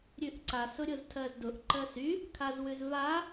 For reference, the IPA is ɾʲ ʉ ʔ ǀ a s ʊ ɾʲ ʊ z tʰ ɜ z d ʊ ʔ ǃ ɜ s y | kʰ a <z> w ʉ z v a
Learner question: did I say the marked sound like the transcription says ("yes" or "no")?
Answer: yes